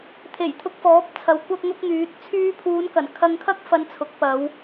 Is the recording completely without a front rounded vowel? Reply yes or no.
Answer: no